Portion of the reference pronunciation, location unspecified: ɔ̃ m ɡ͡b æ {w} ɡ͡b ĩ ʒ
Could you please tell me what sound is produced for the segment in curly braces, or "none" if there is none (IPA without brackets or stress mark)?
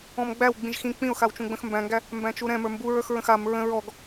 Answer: w